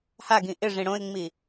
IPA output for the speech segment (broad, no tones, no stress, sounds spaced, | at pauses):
h a ɡ ĩ ʔ ɪ ʐ ĩ ɽ õ ɪ̯ ŋ͡m i